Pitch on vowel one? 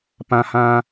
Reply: low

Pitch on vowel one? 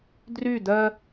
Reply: falling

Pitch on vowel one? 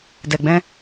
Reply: low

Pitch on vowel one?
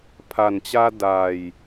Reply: low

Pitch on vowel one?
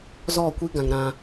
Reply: falling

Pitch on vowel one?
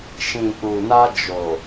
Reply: low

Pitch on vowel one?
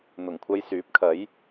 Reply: low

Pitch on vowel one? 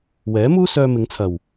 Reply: rising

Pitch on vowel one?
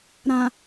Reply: low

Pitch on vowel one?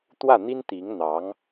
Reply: falling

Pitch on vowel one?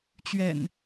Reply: low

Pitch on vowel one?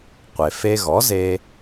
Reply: low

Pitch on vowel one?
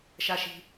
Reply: low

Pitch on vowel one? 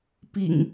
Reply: low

